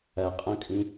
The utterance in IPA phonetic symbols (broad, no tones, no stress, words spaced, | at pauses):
ɐqʼɔ̃kʼĩ